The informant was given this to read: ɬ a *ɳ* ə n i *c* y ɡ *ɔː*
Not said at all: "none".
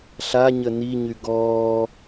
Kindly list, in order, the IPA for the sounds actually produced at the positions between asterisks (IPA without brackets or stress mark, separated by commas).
ɲ, ɲ, ɔː